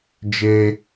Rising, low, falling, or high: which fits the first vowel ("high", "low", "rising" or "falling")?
high